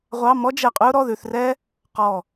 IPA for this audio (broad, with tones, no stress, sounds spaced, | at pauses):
ʁʷ ɑ˧˥˧ m ɔ˥ d͡ʒ ɛ˧˩ qʼ ʉ˥ ʊ̯ ɾ ɔ˧˥˧ ð ʉ˧˥˧ θ r ɛː˥ | q ɔ˧˩